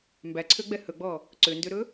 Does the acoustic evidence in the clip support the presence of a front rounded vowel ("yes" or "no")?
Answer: yes